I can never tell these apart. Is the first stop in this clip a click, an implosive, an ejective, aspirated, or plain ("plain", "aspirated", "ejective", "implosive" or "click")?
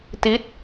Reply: plain